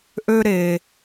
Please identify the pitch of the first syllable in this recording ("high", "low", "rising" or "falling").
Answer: high